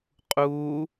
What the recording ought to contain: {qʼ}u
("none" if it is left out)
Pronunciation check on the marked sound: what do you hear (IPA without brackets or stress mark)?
qʼ